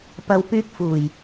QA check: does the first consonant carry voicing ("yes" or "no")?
no